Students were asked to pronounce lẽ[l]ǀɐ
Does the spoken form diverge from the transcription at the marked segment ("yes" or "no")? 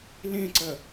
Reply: yes